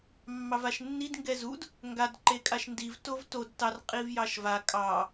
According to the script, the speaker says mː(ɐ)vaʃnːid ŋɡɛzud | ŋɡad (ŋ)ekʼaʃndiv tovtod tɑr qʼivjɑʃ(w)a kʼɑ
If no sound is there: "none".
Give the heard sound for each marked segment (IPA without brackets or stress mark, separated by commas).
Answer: ɑ, ǃ, v